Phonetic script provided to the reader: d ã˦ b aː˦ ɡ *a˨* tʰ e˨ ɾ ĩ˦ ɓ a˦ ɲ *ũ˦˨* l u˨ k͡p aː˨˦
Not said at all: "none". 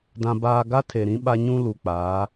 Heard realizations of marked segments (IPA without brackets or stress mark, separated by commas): a˦, ũ˦